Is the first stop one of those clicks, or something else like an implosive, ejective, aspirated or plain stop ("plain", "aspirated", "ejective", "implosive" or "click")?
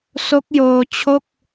plain